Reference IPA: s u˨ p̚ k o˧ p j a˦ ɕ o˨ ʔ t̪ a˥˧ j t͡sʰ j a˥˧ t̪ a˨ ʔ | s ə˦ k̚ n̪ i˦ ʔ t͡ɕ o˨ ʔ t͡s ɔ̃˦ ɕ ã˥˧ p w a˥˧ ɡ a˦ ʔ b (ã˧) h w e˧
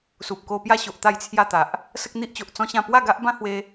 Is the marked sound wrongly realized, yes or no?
yes